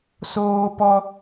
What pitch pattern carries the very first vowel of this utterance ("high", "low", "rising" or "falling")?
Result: high